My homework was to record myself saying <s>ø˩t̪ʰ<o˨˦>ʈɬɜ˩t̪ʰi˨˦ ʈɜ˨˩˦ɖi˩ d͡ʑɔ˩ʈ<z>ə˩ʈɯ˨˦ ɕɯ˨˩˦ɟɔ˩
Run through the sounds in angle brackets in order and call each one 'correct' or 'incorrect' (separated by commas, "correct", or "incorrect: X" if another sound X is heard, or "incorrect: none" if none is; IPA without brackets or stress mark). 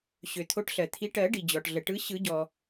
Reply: incorrect: ɕ, correct, incorrect: ɮ